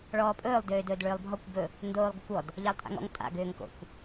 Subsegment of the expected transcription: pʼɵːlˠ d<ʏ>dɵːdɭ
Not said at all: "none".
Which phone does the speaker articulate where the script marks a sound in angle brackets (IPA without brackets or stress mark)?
ʏː